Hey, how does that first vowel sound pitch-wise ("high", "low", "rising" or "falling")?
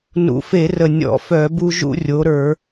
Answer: low